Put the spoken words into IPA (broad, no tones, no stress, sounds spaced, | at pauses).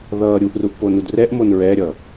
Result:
ð ʌː ɾʲ u ʔ r u ʔ p o n u d r ɛ ʔ m o n ɹ ɛ ɾʲ ʌː